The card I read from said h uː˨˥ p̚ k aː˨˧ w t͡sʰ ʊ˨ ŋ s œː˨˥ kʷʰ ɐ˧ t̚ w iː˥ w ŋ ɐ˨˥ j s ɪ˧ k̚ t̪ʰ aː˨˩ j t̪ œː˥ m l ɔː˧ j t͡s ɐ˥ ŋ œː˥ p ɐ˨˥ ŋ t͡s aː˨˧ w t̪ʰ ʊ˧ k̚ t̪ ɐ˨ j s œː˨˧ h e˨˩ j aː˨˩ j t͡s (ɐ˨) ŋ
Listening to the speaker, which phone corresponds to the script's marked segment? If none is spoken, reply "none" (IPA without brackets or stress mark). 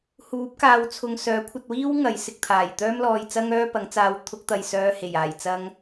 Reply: ɐ˧